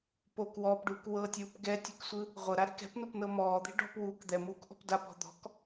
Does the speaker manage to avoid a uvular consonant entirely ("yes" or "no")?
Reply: no